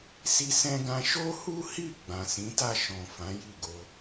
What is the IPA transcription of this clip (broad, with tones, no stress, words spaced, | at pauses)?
si˧sɛ̃˧ɡã˧ ʃo˦hu˦hi˦˨ ɡ͡bã˨sĩ˨˦ta˦˨ ʃɔ̃˨ fã˨˦ ji˦˨ɡo˧